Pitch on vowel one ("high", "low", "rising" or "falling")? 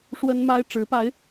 high